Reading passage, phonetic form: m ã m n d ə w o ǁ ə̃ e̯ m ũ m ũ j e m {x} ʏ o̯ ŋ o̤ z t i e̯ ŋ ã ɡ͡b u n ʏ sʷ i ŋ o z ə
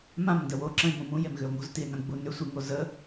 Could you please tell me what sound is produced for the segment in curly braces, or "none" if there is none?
ɣ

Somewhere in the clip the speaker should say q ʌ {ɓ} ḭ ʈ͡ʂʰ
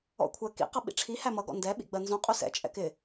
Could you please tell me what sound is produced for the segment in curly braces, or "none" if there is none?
ɓ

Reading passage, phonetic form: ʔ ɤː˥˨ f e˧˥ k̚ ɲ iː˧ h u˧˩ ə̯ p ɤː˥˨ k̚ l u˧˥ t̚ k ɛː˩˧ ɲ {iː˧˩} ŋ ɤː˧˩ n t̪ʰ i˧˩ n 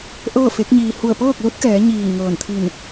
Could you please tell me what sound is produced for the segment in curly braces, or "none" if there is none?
iː˧˩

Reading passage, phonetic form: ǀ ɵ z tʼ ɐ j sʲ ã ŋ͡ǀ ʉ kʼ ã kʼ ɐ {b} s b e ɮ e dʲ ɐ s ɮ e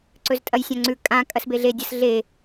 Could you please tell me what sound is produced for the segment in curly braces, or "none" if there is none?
none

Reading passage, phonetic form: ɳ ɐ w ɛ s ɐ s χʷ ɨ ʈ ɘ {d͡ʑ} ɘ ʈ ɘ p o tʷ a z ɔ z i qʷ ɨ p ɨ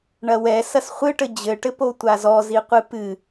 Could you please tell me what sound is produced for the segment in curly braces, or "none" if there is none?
d͡ʑ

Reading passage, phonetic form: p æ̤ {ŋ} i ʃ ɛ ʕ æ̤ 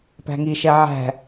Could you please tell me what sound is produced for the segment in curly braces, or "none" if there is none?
ŋ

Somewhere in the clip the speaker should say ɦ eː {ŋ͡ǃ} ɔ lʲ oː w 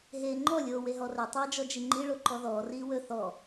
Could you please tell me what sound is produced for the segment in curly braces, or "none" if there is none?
ŋ͡ǃ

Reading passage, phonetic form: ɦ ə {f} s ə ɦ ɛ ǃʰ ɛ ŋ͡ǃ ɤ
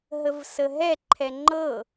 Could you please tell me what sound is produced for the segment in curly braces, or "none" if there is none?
v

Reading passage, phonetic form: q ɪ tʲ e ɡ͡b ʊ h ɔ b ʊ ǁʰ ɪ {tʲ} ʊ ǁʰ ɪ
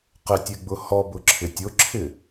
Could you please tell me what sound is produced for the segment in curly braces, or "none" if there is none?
tʲ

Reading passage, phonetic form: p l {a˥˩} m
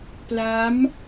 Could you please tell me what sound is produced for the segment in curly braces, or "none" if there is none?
a˦˥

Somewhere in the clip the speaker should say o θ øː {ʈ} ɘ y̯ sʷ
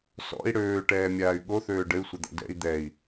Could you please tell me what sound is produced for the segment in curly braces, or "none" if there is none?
ɖ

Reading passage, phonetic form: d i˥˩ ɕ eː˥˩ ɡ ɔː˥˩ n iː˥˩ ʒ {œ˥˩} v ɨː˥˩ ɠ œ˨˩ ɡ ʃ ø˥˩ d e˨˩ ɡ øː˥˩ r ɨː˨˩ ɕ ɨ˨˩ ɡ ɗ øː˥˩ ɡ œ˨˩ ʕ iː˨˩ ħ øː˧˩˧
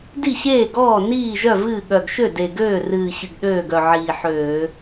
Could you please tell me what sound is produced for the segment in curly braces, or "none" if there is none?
œ˥˩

